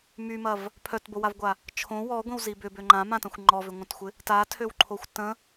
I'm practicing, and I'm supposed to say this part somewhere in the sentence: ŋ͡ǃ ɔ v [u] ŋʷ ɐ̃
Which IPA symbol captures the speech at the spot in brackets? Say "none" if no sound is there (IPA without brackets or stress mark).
ʏ